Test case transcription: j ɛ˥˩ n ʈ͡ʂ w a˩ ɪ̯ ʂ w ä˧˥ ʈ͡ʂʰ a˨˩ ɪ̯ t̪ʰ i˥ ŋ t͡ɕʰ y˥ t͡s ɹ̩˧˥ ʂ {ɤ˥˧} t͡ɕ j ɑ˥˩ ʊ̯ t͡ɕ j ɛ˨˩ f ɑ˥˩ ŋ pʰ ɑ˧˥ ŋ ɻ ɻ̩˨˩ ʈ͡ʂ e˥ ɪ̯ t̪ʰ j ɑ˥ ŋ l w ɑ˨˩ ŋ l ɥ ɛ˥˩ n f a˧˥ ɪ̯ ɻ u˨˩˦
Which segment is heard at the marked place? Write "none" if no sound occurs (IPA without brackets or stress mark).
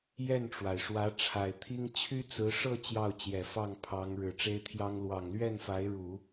ɤ˥˧